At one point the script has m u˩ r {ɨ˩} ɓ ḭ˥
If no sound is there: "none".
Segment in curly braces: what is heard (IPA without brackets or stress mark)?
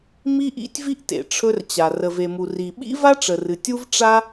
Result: i˩